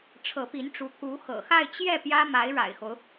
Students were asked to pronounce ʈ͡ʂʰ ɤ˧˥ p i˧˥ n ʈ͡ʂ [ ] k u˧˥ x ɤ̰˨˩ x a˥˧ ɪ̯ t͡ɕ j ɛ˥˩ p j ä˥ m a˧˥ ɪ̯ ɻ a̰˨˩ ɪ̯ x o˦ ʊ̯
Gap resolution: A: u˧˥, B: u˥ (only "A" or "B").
A